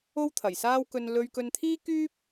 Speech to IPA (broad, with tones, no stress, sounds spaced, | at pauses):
o˥ w t̪ʰ ɐ˨˩ j s aː˥ w k ɵ˧ n l ɵ˧ ɥ k ɵ˧ n t̪ʰ iː˥ k yː˥ p̚